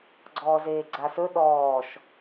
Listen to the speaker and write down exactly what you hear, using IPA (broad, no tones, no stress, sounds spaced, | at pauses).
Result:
ɡ͡ǀ ɔː z eː ɡ͡ǀ a s ɵ ɗ ɔː ʃ